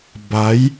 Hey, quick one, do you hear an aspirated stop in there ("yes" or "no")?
no